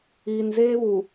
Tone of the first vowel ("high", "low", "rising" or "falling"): low